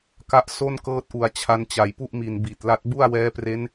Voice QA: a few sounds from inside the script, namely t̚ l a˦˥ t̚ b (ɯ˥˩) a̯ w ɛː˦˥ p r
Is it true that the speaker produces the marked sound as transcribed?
no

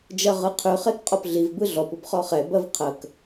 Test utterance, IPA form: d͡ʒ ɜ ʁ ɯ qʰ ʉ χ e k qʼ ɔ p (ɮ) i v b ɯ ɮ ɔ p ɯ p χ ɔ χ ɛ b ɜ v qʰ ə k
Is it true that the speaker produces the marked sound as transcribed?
yes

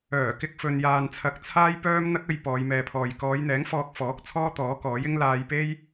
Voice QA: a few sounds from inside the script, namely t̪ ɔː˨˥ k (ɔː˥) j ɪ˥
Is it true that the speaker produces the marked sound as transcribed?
no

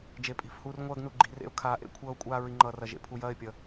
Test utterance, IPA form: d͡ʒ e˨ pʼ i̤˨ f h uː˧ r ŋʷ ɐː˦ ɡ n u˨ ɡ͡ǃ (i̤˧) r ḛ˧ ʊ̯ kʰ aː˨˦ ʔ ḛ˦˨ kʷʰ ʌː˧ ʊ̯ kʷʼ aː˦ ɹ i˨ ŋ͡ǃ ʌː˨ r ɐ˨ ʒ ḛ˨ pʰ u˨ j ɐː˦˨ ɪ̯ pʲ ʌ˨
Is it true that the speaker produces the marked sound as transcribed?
no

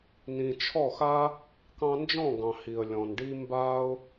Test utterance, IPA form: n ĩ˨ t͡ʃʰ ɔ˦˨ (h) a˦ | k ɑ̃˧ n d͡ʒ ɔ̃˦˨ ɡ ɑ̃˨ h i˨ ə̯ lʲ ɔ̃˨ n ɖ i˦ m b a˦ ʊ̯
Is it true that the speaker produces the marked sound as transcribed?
no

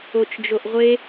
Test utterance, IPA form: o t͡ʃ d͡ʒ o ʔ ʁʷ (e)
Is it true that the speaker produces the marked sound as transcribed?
yes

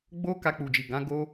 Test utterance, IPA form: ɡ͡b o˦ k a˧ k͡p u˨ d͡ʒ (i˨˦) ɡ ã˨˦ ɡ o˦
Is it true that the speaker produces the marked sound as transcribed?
no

